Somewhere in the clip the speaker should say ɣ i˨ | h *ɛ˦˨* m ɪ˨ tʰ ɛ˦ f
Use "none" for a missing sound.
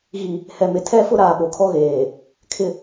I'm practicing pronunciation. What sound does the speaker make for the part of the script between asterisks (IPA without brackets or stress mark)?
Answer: ɛ˨